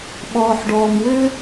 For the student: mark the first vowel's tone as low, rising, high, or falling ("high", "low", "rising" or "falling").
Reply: low